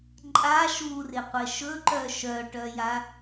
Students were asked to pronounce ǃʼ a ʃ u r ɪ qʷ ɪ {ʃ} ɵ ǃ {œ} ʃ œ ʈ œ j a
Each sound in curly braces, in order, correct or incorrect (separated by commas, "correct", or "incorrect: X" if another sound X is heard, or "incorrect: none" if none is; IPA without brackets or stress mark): correct, correct